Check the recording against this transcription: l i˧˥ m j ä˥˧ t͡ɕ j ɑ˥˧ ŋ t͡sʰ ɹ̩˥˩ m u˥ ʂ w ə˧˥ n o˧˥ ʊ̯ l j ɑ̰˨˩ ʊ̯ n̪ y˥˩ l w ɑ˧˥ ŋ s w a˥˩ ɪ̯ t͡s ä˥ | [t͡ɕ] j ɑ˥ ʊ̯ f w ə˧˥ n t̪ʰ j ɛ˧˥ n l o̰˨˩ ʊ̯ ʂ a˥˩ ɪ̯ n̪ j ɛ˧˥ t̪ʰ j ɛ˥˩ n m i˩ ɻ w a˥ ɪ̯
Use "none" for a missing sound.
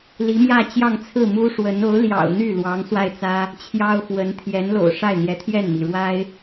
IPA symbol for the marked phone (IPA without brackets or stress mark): t͡ɕʰ